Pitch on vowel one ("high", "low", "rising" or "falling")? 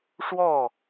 falling